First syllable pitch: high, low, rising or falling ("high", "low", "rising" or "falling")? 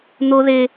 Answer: high